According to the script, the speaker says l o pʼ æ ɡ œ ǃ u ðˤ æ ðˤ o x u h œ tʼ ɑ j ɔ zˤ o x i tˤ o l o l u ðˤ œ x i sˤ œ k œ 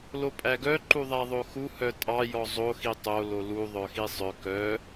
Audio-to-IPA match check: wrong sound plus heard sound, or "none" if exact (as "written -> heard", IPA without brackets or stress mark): none